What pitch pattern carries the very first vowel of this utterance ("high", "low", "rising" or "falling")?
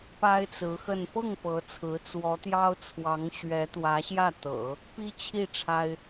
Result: high